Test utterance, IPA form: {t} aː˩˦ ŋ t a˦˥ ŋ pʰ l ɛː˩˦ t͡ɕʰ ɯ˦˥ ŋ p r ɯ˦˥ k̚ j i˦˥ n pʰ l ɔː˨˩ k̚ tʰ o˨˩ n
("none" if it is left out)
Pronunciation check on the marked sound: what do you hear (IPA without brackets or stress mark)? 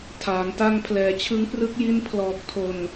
tʰ